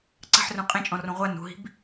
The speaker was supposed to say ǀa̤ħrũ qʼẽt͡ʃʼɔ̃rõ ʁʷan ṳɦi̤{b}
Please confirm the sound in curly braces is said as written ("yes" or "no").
yes